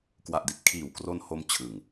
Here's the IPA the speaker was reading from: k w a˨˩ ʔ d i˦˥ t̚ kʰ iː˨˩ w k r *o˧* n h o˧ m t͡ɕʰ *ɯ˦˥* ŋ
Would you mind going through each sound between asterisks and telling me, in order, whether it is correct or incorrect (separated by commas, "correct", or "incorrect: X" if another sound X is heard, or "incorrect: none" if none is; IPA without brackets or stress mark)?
correct, incorrect: ɯ˨˩